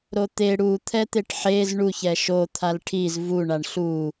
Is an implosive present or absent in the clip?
absent